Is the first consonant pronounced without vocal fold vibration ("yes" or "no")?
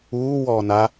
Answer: no